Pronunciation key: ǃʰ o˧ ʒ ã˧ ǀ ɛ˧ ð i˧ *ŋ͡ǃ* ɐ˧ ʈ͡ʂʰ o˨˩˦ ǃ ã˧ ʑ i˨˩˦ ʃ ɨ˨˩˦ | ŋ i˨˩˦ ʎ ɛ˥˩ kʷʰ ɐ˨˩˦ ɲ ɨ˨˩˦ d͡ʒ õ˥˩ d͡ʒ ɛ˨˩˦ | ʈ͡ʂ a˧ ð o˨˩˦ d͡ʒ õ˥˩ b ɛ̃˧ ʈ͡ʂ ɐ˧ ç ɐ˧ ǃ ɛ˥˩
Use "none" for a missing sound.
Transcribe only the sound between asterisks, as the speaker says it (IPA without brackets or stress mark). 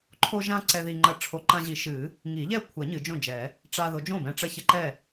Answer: ŋ͡ǃ